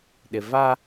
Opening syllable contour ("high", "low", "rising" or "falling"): low